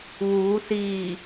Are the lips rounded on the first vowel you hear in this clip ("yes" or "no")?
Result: yes